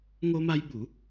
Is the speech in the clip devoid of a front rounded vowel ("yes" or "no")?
yes